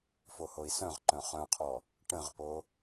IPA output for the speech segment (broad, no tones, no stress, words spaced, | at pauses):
fohoi̯sœ̃ʁǃœ̃ χœ̃qʰɔ | ʈə̃ʁpo